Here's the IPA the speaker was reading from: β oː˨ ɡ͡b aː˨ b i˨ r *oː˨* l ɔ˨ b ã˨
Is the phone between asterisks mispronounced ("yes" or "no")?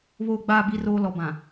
no